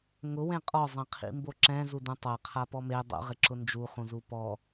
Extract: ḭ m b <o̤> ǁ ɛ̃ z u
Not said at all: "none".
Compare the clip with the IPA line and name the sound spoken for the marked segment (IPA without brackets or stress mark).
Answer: o